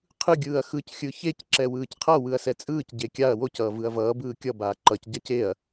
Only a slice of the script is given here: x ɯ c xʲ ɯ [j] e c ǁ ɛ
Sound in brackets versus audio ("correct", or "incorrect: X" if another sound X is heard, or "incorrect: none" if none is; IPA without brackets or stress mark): incorrect: ç